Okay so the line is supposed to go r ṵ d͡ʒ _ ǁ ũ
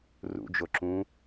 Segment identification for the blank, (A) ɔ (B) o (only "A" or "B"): B